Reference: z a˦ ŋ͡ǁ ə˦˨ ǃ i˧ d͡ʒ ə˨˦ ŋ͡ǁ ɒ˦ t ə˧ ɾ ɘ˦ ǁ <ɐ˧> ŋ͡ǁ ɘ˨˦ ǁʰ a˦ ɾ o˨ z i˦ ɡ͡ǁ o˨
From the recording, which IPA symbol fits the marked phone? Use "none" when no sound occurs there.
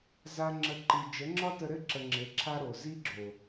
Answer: ə˧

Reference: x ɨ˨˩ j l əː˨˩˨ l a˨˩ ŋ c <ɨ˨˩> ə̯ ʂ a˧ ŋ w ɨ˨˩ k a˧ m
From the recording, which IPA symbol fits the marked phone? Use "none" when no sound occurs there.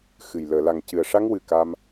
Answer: ɨ˨˩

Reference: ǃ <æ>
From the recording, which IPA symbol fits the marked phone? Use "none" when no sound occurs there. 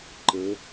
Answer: ə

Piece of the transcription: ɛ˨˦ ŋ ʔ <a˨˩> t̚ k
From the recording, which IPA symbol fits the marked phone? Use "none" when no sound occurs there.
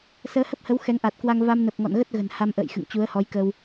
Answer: a˨˩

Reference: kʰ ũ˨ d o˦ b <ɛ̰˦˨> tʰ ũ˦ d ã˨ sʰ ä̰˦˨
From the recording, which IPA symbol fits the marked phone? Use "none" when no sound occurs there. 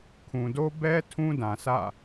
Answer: ɛ˦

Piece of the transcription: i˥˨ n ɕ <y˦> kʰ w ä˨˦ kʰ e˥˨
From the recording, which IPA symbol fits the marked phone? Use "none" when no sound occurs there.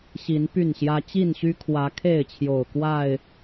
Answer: y˦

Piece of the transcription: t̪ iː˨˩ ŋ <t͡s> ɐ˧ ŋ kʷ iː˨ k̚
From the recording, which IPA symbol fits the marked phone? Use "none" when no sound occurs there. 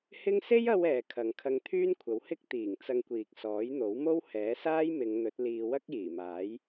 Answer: t͡s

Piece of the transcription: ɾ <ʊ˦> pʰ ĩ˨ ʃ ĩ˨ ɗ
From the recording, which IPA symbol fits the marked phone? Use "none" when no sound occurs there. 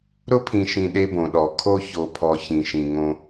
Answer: ʊ˦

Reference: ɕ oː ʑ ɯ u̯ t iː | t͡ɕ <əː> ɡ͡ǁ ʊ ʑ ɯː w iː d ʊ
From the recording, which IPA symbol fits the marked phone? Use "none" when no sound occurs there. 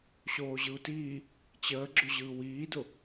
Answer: əː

